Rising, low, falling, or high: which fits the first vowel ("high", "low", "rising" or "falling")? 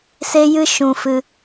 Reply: high